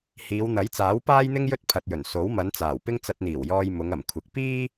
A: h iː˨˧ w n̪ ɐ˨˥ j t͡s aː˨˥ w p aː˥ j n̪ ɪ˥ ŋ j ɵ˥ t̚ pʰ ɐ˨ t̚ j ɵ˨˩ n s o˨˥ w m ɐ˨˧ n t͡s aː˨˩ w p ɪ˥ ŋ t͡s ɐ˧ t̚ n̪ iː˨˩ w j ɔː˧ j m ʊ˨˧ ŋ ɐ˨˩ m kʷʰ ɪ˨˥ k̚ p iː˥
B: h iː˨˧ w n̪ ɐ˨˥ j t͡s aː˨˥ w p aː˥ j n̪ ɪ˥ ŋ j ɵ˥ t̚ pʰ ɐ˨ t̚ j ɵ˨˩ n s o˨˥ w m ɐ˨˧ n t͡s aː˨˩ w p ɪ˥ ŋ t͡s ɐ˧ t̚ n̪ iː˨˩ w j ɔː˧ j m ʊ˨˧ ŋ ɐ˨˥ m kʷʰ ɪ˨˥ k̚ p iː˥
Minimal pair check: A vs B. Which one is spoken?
A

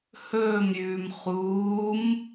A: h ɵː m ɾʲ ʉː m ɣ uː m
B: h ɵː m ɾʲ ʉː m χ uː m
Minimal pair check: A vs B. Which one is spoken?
B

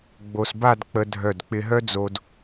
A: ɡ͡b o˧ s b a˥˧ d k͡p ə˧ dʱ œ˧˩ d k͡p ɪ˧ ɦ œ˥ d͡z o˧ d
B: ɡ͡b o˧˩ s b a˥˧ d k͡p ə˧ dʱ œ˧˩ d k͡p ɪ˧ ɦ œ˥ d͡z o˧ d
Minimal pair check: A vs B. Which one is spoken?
A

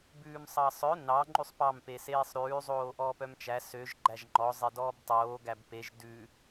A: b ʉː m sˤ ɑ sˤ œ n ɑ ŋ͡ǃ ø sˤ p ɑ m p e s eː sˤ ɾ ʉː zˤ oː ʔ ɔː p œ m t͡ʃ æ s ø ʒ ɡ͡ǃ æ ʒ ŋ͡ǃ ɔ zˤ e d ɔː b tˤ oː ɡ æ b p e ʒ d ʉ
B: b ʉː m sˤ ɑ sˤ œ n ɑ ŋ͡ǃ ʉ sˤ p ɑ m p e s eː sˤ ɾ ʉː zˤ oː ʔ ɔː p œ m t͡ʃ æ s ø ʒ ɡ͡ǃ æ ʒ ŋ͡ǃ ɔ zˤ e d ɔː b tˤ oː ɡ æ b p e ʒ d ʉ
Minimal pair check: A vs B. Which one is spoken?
B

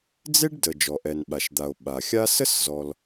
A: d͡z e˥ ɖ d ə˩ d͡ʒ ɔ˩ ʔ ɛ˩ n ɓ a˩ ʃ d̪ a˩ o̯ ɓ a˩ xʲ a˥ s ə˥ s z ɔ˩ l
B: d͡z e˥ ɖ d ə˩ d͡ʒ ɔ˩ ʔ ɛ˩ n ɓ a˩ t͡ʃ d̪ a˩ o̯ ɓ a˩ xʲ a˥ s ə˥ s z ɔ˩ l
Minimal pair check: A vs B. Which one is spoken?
A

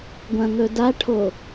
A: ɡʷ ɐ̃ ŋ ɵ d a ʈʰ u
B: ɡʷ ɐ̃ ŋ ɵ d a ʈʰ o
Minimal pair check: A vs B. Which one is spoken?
B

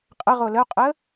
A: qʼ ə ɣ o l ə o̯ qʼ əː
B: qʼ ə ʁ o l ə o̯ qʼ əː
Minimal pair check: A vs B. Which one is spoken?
B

